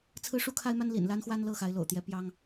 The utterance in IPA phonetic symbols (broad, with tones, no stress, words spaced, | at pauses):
t͡sʰɹ̩˦ʂu˦kʰa˦ɪ̯ma˦n lḭ˨˩nla˦nxwa˦n lɤ˥˨xa˨˦ɪ̯lo̰˨˩ʊ̯t̪jɛ˨˦ pjɑ˦ŋ